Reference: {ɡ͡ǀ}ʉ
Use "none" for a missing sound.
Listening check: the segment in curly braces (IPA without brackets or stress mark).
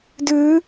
d